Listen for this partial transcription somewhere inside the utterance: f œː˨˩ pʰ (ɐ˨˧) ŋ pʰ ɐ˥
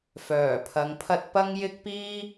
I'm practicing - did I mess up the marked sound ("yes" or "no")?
no